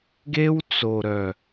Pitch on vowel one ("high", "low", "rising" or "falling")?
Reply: high